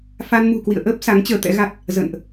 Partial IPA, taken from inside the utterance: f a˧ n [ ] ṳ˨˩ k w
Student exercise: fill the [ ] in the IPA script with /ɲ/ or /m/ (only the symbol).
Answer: m